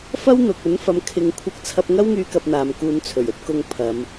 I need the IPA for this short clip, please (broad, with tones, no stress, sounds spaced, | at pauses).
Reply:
f ɐ˥ w n̪ ʊ˨ k̚ ɵ˨˥ n f ɐ˨˧ m kʰ ɪ˨˧ ŋ kʷʰ ɐ˧ k̚ t͡sʰ ɐ˧ p̚ ŋ ɐ˥ w ŋ yː˧ k ɐ˧ p̚ n̪ aː˨ m k uː˨˧ n t͡sʰ ɵ˨˩ ɥ ɵ˧ t̚ k ʊ˧ ŋ pʰ ɐ˨˧ m